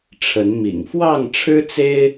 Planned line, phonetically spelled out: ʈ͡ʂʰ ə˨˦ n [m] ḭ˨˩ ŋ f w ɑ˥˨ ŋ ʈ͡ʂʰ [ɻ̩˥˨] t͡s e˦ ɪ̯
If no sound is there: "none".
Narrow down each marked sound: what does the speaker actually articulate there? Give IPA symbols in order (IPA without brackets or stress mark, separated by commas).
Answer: m, ɻ̩˦